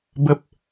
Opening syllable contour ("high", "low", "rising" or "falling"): low